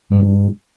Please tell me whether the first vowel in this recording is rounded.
yes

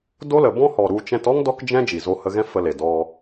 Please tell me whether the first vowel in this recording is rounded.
yes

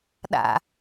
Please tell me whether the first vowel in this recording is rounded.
no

